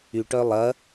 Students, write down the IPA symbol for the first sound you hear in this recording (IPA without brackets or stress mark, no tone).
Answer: y